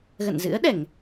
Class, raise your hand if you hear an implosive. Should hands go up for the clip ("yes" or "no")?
yes